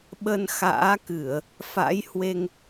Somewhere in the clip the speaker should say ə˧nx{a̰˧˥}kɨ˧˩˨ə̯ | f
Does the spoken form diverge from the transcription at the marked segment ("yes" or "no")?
yes